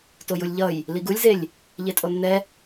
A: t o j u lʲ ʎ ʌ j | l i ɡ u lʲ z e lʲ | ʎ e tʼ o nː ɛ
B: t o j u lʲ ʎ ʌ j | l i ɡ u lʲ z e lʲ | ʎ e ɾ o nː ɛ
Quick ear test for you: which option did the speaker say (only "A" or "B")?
A